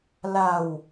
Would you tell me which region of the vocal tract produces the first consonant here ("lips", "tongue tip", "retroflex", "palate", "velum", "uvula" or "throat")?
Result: tongue tip